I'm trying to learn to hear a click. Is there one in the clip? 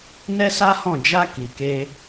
no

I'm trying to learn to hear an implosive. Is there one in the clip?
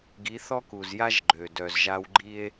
no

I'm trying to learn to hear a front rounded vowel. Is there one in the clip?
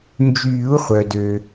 yes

